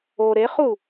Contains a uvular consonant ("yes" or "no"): yes